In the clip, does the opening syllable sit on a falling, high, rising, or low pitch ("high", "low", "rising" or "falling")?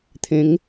rising